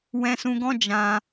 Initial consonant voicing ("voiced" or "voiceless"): voiced